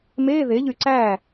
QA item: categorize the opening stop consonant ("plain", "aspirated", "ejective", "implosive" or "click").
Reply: click